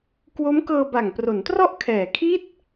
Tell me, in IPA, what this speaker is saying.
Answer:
k w o˦˥ m k ɤː˧ b a˨˩ ŋ p r o˩˦ n t r ɔ˥˩ ʔ kʰ ɛː˨˩ kʰ i˥˩ t̚

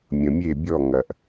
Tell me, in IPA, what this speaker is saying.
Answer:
mʲ ə̃˧ mʲ e˥˧ bʲ ɔ˥˧ ŋ ɐ˧ ʔ

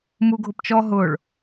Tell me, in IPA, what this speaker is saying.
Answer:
m u ɡʱ ʊ p t͡ʃ ɔ ɦ ʊː ɭ

